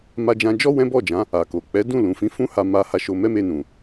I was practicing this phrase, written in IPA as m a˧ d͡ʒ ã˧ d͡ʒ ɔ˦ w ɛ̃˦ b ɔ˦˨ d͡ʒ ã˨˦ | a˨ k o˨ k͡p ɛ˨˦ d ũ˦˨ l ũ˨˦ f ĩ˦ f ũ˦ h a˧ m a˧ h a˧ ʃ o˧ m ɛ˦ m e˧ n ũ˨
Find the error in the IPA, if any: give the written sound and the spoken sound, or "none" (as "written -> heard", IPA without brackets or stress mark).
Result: none